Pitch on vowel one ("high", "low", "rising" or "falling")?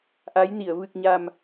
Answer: rising